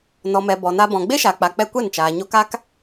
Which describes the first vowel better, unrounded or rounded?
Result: rounded